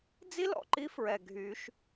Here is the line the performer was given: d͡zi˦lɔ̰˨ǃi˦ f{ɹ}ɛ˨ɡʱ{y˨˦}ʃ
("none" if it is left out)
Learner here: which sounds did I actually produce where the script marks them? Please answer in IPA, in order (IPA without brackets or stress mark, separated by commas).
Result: ɹ, y˨˦